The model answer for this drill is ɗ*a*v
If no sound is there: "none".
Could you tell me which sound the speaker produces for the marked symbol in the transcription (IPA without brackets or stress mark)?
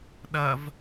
ɐ